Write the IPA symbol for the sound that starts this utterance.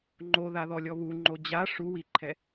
ŋ͡ǃ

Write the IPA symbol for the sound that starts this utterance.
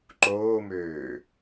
ǃ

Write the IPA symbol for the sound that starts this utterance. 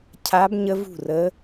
cʰ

